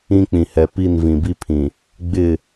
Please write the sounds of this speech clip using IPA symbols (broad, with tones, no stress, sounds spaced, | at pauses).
ĩ˦ k͡p ĩ˨ h ɛ˨ p i˦˨ n v ĩ˨ b i˦ pʰ ĩ˨ | ɡ͡b ɪ˦˨